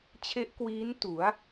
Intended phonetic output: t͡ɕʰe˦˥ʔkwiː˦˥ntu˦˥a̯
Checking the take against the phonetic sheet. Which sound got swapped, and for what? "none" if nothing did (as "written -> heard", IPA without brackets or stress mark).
u˦˥ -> u˩˦